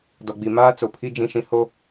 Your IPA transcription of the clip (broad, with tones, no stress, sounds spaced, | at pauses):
d ɔ˨ ɡ͡b i˨ m aː˦ t͡s o˨ pʰ i˦ d͡ʒ ĩ˦ ʃ ĩ˦ h o˦